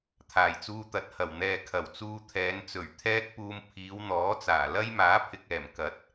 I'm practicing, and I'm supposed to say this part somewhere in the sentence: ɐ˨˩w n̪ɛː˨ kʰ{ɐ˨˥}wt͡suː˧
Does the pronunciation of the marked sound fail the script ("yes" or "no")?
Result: yes